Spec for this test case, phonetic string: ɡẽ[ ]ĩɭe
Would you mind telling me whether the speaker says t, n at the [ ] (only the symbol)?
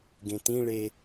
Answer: t